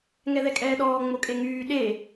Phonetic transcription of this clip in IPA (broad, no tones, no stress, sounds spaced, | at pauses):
ŋ ɛ ð ɛ kʼ ɛː ɗ ɔː ŋ͡m o kʼ e ŋ yː ɗ e